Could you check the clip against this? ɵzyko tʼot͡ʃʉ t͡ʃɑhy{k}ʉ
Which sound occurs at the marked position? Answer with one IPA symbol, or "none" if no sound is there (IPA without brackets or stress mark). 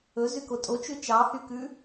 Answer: k